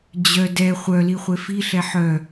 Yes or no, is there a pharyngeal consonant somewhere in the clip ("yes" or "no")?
yes